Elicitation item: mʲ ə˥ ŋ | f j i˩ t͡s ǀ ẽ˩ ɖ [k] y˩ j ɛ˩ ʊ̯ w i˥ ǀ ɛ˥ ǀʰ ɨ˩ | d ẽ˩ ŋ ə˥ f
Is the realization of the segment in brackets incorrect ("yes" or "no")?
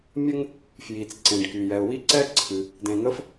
no